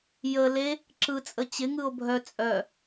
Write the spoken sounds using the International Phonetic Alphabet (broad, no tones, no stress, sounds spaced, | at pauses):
j ə l e | ǁ ɯ t͡sʼ ə t͡ɕ ɪ ŋ ɯ o̯ bʱ œ t͡sʼ œ